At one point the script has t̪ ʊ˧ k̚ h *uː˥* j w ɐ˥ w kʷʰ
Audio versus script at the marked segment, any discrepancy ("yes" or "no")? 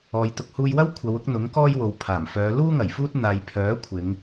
yes